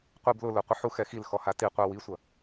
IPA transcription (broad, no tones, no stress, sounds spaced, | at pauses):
qʷ i b l ʊ l ʊ qʷ ɪ ħ u x ɛ x i l x ɔ h a t i qʷ a w i sʷ ɐ